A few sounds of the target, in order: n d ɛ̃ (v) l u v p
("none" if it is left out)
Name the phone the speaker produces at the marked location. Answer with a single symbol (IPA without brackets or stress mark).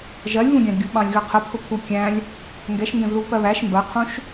v